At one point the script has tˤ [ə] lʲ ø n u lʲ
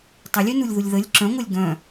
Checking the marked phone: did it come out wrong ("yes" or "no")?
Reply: no